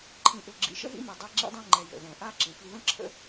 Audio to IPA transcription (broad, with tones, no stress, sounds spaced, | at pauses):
ǃʰ ĩ˨ ʔ ø˨ ɡ͡ǁ ḭ˨ ʃ ə̰˦ ɦ ḭ˦ m e˨ dˤ ɛ˦ ɡ͡ǁ ḭ˦ dˤ ɛ̃˦ ŋ͡ǃ ɛ˨ j ə̰˨ ð ɛ̃˨ ʔ a˦ ǁ ĩ˨ f i˦ ð ə̃˦ ǁʰ ə̰˦